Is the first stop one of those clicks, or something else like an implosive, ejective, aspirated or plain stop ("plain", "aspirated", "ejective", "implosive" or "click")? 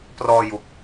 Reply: plain